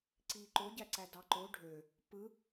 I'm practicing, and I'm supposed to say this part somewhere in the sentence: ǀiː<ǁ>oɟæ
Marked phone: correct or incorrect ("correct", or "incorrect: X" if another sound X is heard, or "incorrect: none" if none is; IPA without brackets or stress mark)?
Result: incorrect: ǃ